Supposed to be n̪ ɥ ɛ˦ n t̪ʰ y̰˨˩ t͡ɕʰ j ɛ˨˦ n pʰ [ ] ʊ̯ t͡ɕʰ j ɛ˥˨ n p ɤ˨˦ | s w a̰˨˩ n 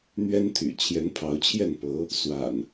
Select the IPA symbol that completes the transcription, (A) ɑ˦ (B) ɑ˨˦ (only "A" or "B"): B